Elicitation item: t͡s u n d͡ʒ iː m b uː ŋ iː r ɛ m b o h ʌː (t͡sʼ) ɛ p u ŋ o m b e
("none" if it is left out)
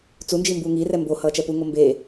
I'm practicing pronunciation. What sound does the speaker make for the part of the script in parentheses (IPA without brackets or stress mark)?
t͡ʃ